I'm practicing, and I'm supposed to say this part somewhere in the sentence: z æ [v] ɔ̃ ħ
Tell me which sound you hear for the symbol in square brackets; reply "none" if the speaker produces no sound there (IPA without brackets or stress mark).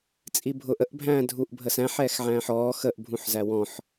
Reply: w